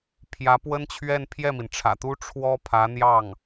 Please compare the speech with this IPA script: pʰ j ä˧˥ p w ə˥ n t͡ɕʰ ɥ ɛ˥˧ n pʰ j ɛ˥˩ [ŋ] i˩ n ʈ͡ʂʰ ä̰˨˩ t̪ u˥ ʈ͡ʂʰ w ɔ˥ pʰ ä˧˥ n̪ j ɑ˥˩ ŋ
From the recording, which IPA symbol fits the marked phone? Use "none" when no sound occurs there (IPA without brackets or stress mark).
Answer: m